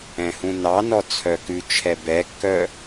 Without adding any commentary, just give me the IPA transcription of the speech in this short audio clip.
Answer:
ɛ̃ h ũ n ɑ n ɔ t͡sʰ œ k ʉ t͡ʃʰ ɛ b ɛ kː œ

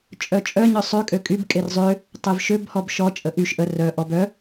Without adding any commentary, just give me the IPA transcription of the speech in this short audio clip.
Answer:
t͡ʃʼ œ t͡ʃʼ œ ɲ œ sˤ ø kʼ ø kʼ y b kʼ e r zˤ ø | tˤ e v ʃ ø b h ɔ b ʃ ɔ t͡ʃʼ ə ʔ y ʃ ʔ ə r œ ʔ ɔ b œ

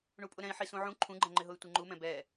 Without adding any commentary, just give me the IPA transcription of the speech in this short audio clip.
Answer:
ɳ u pʼ ʊ ɾ ɛ̃ i̯ ħ i s ũ ʕ ũ ǃʰ ũ ɡ͡ǃ ɛ̃ ŋ͡ǃ ɪ ɦ ʊ y̯ tʷ i ŋ͡ǃ u m ɛ̃ b ɛ

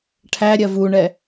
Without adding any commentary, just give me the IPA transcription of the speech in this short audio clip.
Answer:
ʈʰ æ ɾʲ ɜ v u ɳ ɛ

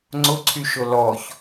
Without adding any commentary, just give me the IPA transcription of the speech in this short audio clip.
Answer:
ŋ͡ǀ ʊ ǀʰ y ʃ ʊ l ɔ ç

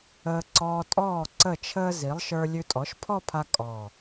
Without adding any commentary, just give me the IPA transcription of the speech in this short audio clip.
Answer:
əː˧ ǀ ɔː˧ tʼ ɔː˥˩ ǀ ə˥˩ t͡ʃʰ əː˥ z i˩˥ lˠ ʃ ə˞˧ lʲ ʉ˧ tʼ ɔ˩˥ ʃ pʰ ɔ˥˧ pʰ a˧ kʼ ɔ˨˩

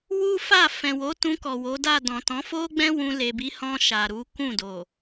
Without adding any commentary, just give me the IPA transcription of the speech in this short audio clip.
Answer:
w u˦ f a˦˨ f ɛ̃˨ w o˨˦ t ũ˧ k ɔ˨ w o˨˦ d a˦˨ d ɔ̃˨ t ɔ̃˨˦ f o˦ ɡ͡b ɛ̃˦ w ũ˧ l e˨ b i˨˦ h ɔ̃˧ ʃ a˨ ɾ u˨˦ k ũ˦˨ d o˨

